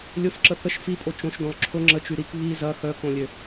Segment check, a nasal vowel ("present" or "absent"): present